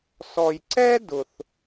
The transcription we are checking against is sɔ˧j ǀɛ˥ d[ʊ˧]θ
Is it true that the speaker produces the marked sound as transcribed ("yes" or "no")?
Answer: yes